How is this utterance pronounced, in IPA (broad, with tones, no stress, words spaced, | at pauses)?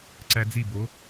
ǀæ˧d͡zi˦˨bo˨˦